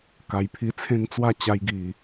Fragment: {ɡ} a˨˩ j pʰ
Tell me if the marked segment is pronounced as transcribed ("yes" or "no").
no